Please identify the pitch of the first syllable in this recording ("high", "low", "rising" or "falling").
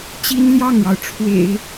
high